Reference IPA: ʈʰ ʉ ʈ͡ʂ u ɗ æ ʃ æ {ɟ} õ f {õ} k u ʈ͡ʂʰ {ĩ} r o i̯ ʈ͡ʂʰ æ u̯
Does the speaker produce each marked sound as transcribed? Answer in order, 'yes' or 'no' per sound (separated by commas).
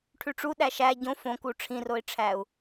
yes, yes, yes